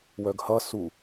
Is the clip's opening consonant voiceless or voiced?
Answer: voiced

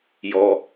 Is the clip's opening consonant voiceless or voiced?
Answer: voiced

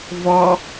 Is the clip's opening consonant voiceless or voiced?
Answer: voiced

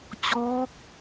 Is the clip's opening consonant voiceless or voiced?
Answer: voiceless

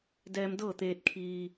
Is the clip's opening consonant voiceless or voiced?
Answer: voiced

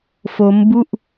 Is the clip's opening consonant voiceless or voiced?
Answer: voiceless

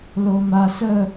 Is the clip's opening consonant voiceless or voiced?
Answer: voiced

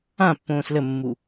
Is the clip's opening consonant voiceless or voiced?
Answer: voiceless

